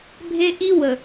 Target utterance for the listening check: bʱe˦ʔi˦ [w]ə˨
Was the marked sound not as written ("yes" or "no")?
no